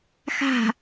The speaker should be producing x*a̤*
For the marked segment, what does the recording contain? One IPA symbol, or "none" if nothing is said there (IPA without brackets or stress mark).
a̤